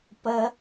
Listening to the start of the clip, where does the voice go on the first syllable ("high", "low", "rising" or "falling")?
high